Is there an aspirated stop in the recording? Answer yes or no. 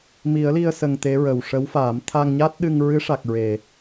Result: yes